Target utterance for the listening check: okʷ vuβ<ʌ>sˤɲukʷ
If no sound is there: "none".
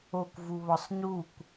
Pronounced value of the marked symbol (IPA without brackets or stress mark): ɒ